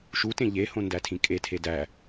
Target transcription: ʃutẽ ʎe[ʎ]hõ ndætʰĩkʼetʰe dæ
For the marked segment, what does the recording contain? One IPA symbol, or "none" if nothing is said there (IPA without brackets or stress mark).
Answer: none